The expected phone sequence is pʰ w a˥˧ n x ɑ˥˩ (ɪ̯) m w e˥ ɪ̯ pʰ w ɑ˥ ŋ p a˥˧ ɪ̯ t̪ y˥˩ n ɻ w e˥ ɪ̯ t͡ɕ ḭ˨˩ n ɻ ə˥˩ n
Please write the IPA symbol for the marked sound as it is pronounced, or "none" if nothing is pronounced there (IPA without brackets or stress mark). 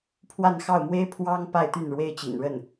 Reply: ʊ̯